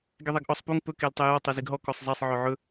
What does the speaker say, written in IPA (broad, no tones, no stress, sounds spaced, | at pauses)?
ɡ e ðˤ ɛ ɡ ʔ ɔ sˤ p u ŋ p ɵ k e l tˤ ɛ j ɔ tˤ œ z i ɡ ɦ ɔ k ɔ sˤ zˤ ɛ sˤ ʕ œ ʕ ɵ